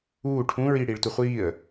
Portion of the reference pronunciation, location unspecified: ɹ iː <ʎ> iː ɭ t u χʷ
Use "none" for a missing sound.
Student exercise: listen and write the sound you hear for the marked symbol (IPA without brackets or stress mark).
ɽ